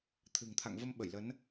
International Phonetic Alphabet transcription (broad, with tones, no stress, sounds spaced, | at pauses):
t̪ʰ ɨ̤˨˩ ŋ t̪ʰ a̰˧˨ ŋ v ə˧ m ɓ ə˧˩ j l ə˨˦ n